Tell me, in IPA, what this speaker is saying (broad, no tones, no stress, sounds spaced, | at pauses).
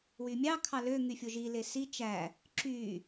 w y mʲ ɑ kʰ ɑ l ø ŋ y fʲ o ʒ i l e s i t͡ʃ æ | ǁ y